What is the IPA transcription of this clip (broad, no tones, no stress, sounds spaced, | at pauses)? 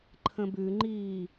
ǃʰ ə̃ b ʉ ŋ͡ǃ iː